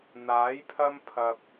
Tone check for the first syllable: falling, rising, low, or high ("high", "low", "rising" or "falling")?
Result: rising